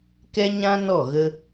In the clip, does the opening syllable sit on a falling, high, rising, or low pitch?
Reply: high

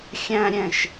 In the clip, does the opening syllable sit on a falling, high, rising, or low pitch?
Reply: high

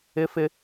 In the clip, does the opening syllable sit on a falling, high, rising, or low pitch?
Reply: high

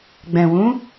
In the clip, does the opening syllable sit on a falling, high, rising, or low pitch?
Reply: low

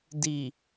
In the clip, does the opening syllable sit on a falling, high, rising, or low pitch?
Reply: low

